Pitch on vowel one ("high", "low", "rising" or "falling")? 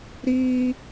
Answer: high